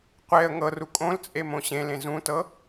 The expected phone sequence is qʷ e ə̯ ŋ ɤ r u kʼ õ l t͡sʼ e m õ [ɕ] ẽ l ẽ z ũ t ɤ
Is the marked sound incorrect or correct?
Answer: correct